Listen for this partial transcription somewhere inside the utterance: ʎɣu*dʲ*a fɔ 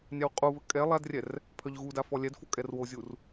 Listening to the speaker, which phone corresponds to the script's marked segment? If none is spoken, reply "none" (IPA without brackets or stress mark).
d